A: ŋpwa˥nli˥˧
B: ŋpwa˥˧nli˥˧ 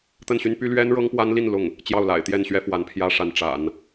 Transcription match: A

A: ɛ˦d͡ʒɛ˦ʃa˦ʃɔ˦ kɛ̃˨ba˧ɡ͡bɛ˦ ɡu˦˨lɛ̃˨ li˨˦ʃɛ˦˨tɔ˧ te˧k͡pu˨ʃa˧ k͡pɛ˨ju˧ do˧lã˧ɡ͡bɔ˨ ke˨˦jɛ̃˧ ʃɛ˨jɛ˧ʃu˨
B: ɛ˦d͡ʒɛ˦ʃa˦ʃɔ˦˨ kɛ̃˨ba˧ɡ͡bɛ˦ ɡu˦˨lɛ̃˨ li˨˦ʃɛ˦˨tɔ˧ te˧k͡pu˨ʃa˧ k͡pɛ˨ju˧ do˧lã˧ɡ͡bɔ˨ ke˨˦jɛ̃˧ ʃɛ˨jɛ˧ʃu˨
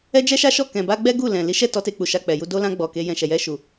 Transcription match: B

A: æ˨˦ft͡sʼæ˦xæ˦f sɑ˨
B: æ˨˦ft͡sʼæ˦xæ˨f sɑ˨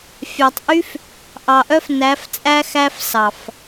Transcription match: A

